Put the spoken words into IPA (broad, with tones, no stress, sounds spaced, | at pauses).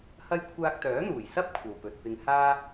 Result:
h ɐ˥ j kʷʰ aː˧ k̚ t̪ œː˨˥ n̪ uː˨˩ j s ɐ˥ p̚ kʷʰ ɐ˨ w p ɵ˨ t̚ p ɪ˧ ŋ h aː˥